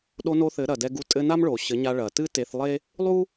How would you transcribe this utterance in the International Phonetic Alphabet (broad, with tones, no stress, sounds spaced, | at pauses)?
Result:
ɗ o˧ n o˧ θ ɘ˨˦ ɾ ɐ˨ d ɛ˧ ɡ u˧ tʼ ɘ˧ n a˦ m ɭ o˨ ɕ ɘ˨˦ ɲ a˧ ɭ ɐ˨ t ɨ˦ t e˧ θ lˠ e˦ | lˠ u˦